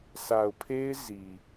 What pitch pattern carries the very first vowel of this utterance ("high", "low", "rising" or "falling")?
low